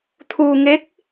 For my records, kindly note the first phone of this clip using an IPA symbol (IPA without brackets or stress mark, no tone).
t̪ʰ